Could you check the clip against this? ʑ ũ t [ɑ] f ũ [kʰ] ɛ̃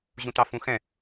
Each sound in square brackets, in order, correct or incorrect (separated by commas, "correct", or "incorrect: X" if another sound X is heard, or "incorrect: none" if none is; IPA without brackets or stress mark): correct, incorrect: x